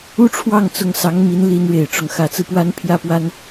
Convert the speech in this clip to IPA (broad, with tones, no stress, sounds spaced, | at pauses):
u˥ ʈ͡ʂʰ w ɑ˥˩ ŋ t͡s ʊ˧˥ ŋ s ɑ˧˥ ŋ m i˧˥ n l i˧˥ n ɻ e˨˩ ɪ̯ ʈ͡ʂ ʊ˦ ŋ x ä˨˩ t͡s ɹ̩˦ p w a˧˥ n pʰ j ä˥ p w a˥ n